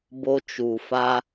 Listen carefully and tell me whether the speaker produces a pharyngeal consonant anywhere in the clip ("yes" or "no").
no